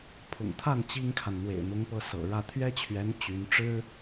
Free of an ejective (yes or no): yes